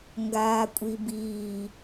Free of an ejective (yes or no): no